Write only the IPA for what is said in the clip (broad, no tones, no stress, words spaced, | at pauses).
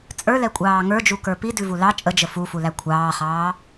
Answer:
t͡sʼə˞lɛkʷʼɑː ŋə˞d͡ʒukə˞ pidʉvu lɑ t͡ʃʼəd͡ʒə fufulæ kʷʰɑːχɑː